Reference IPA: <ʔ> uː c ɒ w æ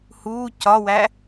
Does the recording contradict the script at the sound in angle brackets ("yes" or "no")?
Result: yes